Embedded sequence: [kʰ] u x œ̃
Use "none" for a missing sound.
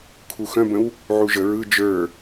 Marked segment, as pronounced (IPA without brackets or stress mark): kʰ